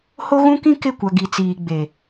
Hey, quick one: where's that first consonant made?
throat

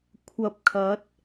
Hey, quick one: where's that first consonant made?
velum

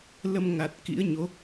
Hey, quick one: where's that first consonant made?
tongue tip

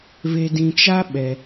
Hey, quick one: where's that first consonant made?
lips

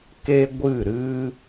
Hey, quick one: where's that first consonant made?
velum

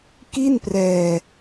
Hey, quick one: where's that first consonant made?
velum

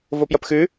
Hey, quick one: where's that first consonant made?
lips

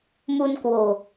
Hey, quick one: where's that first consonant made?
lips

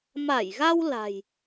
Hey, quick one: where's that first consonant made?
lips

